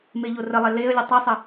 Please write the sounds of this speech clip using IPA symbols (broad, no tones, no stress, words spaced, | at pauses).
meʎorəlˠɛ leə̯lʲə tˤisˤə